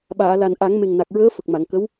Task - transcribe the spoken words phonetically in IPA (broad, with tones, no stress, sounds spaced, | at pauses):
ɓ aː˨˩˨ l a˨˩ n ʔ a˨˩˦ ŋ m e˨˩ ŋ n a˨˩ k̚ ɹ əː˧˥ f ə˨˩ k̚ m a˨˩˨ ŋ k ə˧˥ w